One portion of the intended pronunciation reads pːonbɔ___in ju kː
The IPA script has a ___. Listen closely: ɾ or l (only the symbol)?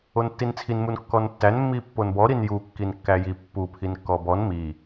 ɾ